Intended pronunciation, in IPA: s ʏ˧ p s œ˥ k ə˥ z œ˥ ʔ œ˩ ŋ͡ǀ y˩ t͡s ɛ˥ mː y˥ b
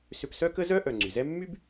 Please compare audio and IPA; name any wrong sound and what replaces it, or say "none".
t͡s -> z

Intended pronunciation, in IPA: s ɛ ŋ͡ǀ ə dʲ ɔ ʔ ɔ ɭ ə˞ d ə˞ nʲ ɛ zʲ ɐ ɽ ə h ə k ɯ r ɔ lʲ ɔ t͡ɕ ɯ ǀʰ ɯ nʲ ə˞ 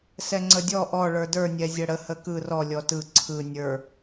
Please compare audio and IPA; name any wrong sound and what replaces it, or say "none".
t͡ɕ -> t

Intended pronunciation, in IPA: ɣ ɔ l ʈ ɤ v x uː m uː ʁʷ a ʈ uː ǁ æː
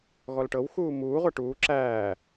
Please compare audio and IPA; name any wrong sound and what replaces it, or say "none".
v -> w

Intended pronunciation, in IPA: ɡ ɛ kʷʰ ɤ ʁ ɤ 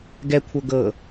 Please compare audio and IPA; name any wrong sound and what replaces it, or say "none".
ʁ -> ɡ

